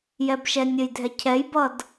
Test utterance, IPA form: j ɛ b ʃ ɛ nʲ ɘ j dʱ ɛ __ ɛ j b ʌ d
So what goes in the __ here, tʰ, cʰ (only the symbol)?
cʰ